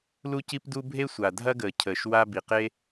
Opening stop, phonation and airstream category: plain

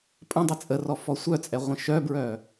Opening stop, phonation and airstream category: ejective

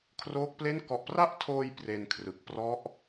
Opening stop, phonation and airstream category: aspirated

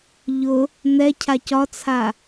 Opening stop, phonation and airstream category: aspirated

